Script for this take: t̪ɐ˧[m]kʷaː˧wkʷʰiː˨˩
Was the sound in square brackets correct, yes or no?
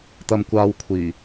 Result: yes